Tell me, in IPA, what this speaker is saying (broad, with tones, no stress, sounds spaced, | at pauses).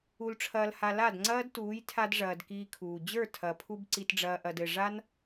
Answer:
u˧ l ʈ͡ʂʰ ɐː˧ l h a˧ l a˦˨ d ŋ͡ǀ ɐː˦ d t uː˨˦ j tʰ a˧ d ʐ ɐː˨ d k iː˧ kʰ uː˨ d͡ʑ ə˞˦˨ tʰ ɐ˨ pʰ u˧ b ǀ i˨ t ɖ͡ʐ ɐː˨ ʔ ɐ˨ d ɘ˨ ʐ a˦ n